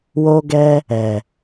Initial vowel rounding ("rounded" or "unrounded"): rounded